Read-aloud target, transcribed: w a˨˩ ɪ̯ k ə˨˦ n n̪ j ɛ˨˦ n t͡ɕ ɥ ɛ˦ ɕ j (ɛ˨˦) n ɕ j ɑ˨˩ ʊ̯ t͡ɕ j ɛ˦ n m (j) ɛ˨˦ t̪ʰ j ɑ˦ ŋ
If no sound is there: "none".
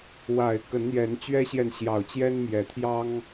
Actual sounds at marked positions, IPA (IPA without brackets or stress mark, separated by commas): ɛ˨, j